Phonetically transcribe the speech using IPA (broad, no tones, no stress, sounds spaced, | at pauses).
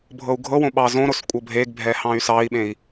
bʱ ɤ u̯ ɡʱ ɤ w õ ɓ ɑ z õ ɾ o s kʷʼ ɤ bʱ e ɡ bʱ ɛ h ɑ̃ y̯ s ɑ i̯ ɓ ẽ i̯